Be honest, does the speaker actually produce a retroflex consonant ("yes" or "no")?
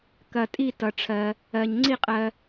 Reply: yes